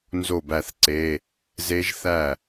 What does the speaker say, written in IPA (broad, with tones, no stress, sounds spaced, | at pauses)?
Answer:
n z o˥˩ b æ˥˩ θ ǀ e˧˥˧ | z e˦˥ ʒ θ æ˥˩